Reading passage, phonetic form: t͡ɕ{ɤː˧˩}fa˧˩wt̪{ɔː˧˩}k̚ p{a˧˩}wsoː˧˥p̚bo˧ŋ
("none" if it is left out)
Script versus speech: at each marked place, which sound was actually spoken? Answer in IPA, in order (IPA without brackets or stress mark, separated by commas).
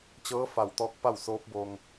ɤː˧˥, ɔː˧, a˥˨